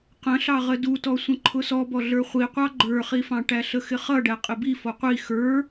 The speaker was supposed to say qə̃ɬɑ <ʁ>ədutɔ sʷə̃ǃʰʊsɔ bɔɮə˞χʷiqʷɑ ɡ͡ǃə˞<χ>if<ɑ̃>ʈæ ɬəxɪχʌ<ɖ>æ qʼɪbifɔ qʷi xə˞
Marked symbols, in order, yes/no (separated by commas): yes, yes, yes, yes